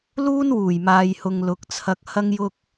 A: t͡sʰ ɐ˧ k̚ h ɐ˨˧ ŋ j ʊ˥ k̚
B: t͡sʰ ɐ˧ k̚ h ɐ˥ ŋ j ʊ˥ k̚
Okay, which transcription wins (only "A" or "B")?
B